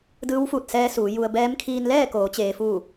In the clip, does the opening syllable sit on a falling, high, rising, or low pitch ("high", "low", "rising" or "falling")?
rising